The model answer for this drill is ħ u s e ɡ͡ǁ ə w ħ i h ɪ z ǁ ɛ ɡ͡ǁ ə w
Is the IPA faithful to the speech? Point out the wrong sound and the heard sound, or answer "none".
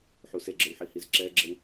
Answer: ɪ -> i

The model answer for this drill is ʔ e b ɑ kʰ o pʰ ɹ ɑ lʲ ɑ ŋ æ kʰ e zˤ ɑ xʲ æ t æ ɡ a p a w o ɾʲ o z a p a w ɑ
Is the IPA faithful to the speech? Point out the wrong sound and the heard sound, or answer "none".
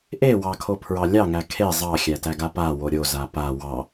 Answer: b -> w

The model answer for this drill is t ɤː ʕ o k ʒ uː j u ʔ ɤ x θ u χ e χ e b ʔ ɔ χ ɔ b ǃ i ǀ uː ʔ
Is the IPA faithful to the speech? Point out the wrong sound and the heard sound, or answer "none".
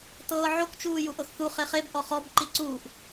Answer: ʒ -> t͡ʃ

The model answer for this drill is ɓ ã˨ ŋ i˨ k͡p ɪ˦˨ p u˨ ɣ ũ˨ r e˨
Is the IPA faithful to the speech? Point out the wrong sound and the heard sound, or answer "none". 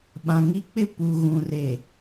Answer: i˨ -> i˦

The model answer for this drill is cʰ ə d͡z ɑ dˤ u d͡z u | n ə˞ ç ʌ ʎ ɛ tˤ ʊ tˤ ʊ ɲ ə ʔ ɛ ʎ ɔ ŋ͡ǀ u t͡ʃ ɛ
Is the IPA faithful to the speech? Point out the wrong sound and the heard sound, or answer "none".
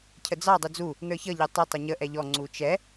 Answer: none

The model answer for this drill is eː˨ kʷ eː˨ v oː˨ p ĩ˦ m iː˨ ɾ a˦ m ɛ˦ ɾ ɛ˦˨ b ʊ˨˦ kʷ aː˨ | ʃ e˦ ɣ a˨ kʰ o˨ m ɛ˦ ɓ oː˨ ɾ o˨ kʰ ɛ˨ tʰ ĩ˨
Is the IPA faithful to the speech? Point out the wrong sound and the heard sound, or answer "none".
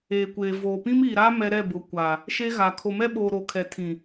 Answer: none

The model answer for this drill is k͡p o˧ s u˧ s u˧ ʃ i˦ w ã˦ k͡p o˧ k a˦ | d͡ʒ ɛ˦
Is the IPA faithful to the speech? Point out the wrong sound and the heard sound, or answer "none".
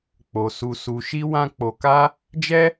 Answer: none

